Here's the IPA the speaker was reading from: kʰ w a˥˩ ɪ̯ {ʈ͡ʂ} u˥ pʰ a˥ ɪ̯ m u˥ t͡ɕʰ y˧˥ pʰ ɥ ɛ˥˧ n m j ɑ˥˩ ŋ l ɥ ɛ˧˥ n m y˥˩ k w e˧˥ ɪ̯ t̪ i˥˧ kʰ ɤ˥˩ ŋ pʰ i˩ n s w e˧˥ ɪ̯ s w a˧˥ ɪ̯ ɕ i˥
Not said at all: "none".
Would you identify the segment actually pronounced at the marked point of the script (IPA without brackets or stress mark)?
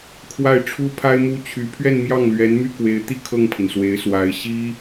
ʈ͡ʂʰ